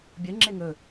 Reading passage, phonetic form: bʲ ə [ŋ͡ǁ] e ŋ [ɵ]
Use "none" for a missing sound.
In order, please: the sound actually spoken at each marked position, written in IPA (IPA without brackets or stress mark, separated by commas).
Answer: ŋ͡ǁ, ɵ